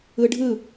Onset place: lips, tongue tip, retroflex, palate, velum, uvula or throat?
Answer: retroflex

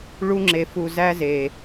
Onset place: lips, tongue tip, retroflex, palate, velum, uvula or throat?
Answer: retroflex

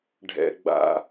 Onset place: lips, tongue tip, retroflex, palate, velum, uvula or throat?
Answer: retroflex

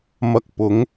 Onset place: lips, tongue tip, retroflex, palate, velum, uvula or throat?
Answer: lips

